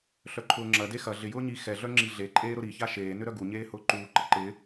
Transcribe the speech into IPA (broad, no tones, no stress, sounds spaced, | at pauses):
ɬ œ ǃʰ ʊː ŋ͡ǁ ɐ d e x ɐ ɮ ɪ j ʊː ɲ i x ɛ ɮ œ ŋ͡ǁ i ɮ e ǃʼ eː ɾ ʊ ɾ i ç a ʃ eː n ʏ ɾ œ ɡ u ɲ eː h ʊː ǃ uː ǃ ə ǃ ɪ